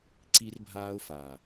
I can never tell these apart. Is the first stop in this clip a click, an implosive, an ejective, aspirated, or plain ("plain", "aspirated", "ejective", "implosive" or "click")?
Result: click